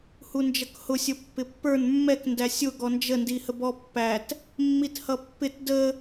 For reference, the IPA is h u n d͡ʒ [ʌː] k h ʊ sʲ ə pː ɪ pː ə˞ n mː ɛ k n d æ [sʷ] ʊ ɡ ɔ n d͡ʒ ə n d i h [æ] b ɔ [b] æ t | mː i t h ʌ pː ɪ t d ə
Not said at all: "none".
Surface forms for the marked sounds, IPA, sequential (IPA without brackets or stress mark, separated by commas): ʌ, sʲ, ə, pː